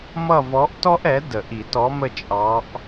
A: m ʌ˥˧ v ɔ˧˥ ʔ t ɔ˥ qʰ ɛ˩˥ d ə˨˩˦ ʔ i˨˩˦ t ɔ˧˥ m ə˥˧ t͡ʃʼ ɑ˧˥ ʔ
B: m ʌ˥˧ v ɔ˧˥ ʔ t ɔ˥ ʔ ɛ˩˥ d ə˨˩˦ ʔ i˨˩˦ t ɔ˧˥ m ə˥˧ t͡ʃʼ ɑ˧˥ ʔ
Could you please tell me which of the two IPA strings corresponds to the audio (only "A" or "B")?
B